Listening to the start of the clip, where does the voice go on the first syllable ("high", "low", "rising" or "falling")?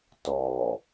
low